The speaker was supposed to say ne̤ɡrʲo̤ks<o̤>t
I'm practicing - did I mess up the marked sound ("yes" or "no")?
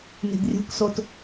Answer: yes